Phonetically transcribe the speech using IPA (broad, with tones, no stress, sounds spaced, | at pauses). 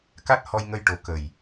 k a˦˥ t̚ h ɔ˧ j ŋ ə˧ j ʈ o˨˩ k ə˨˩ j